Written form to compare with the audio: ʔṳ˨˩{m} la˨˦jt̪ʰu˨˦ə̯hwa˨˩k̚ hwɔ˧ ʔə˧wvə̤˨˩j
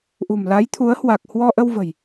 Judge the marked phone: correct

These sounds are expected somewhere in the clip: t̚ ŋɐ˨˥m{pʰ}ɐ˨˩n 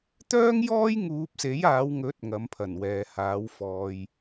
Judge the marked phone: correct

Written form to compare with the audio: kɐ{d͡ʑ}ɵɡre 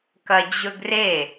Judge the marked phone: correct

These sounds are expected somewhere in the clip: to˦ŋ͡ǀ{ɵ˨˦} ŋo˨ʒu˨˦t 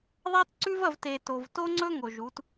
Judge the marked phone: incorrect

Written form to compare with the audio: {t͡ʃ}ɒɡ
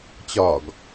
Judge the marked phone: incorrect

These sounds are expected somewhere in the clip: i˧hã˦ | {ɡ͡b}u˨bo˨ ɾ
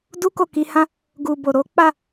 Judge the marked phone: incorrect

